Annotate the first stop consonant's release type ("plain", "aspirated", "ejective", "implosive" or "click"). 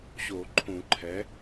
click